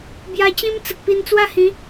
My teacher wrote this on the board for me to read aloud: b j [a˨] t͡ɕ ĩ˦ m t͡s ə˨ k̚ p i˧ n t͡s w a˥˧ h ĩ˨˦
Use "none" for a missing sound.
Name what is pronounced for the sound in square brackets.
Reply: a˧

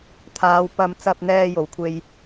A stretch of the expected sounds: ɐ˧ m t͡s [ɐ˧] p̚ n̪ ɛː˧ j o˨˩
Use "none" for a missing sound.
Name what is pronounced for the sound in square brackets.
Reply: ɐ˧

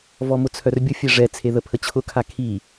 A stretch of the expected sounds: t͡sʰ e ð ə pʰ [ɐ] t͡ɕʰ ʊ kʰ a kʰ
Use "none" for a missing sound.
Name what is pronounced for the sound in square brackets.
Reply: ə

